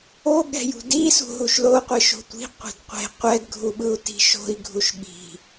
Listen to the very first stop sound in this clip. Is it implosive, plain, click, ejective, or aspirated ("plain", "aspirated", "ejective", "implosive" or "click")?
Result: implosive